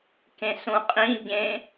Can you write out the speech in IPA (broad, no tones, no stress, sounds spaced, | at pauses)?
k ẽ s ũ qʼ ĩ ɟ ẽ